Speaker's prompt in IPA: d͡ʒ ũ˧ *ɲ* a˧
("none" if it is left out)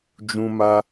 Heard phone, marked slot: m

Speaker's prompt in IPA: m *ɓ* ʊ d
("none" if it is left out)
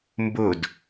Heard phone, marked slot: b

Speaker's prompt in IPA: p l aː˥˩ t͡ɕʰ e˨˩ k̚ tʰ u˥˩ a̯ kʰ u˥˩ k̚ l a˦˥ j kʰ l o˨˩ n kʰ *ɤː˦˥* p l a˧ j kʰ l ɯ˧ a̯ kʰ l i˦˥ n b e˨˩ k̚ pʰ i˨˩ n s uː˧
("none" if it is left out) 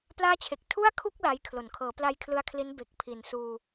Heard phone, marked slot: ɤː˩˦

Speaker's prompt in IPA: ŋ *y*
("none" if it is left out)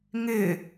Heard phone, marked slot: ɪ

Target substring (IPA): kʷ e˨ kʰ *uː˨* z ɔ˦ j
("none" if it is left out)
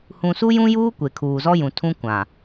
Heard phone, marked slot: uː˨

